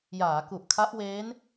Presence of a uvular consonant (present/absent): absent